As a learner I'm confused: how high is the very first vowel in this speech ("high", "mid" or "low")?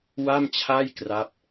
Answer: low